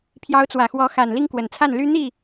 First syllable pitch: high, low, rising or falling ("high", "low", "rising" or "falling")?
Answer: rising